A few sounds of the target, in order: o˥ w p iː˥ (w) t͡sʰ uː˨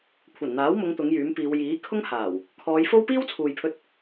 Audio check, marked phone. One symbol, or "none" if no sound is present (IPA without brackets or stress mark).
w